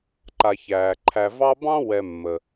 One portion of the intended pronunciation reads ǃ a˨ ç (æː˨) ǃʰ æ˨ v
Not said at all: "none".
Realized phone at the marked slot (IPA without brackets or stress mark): æː˩